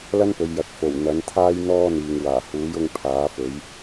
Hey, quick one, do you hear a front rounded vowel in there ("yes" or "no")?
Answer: no